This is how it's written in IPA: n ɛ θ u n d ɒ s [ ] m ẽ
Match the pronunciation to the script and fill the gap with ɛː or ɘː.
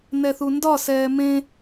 ɛː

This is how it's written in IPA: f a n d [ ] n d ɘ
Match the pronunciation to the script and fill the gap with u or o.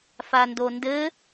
o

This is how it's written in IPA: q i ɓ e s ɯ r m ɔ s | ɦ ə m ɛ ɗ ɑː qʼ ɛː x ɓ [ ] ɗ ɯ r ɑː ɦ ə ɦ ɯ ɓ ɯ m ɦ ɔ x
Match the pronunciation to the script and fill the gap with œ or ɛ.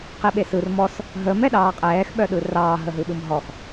œ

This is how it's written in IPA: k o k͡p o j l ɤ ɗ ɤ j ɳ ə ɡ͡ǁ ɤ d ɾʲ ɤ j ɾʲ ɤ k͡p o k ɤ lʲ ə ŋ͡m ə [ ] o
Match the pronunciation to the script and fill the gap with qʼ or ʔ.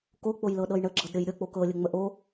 ʔ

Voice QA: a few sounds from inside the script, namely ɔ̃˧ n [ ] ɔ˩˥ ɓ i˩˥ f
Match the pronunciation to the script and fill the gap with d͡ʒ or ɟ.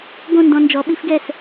d͡ʒ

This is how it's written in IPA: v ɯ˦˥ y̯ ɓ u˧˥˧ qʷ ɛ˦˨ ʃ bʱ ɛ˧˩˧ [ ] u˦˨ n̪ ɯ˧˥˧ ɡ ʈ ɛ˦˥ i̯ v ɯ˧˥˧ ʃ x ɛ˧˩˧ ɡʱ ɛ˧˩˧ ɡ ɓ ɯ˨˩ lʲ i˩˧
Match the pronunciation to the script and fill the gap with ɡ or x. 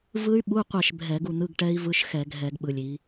ɡ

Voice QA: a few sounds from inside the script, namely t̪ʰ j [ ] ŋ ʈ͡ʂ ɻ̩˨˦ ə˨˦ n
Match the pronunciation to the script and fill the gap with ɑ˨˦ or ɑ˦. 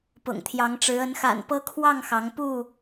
ɑ˨˦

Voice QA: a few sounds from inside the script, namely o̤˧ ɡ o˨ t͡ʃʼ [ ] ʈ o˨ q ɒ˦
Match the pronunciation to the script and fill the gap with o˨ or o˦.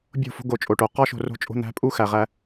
o˨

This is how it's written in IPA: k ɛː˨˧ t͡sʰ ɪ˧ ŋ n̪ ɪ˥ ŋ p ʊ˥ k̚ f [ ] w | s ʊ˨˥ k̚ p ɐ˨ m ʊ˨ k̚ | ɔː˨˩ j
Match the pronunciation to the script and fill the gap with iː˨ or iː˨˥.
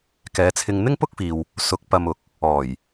iː˨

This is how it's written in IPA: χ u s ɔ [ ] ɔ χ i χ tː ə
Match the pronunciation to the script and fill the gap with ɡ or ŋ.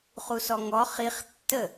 ŋ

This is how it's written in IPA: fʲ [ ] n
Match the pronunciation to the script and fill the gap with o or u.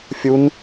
u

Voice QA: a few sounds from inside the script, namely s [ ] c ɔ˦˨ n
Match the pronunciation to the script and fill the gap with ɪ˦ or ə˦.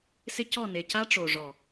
ɪ˦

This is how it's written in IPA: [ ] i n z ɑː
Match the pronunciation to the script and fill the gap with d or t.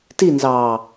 t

